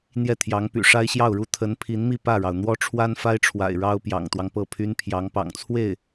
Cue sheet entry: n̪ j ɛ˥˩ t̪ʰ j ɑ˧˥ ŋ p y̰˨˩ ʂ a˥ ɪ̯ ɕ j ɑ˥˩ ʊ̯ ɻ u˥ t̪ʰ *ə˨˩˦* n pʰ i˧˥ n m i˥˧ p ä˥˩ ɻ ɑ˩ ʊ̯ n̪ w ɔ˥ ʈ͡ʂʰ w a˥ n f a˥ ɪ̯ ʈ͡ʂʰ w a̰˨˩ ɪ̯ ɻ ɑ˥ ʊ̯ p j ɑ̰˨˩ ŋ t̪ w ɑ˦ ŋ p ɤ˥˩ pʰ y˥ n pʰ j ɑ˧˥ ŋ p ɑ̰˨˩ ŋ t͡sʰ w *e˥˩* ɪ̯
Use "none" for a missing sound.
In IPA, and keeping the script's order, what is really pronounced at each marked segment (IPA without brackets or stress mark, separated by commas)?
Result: ə˧˥, e˥˩